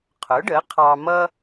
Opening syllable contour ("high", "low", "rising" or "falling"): rising